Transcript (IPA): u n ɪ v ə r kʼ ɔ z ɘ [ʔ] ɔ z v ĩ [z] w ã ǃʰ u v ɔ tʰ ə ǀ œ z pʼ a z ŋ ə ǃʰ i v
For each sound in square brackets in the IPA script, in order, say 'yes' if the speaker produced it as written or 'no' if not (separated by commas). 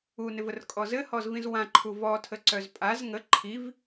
no, yes